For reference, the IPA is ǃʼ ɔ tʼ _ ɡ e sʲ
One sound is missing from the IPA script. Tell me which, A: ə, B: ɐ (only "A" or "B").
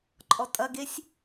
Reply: B